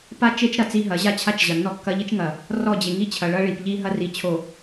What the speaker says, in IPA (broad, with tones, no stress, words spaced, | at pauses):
pa˦ t͡ʃe˦t͡ʃɾɐ˨ t͡si˦ɦɐ˨˦ʑa˦t͡ɕʰa˦t͡ʃ ʑɐ˨nːɔ˦kːɐ˦ ʎi˦t͡ʃŋɐ˨ | rɔ˦˨d͡ʑe˨ŋi˦ t͡ɕʰɐ˨ɭɐ˦ ɭi˨pʎi˦ɦɐ˦ ri˨t͡ɕʰo˨